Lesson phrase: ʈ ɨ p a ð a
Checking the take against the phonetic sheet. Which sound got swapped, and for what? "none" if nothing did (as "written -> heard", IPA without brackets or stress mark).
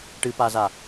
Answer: ð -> z